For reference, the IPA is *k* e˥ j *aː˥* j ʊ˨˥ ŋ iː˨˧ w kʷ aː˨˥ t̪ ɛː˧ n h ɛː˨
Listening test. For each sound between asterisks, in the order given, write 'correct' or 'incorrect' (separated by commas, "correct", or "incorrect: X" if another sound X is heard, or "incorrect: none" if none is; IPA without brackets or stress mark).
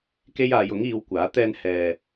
correct, incorrect: aː˨˧